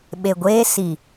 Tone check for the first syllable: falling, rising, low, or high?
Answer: low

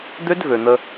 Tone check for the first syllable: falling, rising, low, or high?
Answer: high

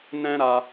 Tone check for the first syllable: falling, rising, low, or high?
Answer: high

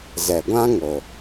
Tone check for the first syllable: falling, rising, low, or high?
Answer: low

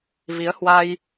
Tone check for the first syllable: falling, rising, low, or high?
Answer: rising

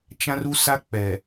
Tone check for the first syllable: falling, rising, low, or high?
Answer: high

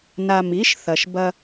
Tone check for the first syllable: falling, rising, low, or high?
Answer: low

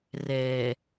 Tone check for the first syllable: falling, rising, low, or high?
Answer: low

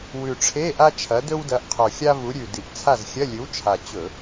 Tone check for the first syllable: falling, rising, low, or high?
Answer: low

